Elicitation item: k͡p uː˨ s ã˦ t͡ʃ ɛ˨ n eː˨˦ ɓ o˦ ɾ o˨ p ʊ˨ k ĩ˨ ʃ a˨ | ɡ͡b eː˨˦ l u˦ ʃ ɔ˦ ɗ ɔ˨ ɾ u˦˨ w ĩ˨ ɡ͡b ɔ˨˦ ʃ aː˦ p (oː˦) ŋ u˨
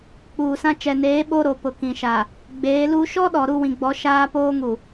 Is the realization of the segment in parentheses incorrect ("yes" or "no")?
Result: no